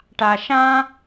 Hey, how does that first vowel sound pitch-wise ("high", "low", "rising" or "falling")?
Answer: low